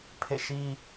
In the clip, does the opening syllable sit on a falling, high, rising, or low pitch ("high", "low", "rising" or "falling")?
falling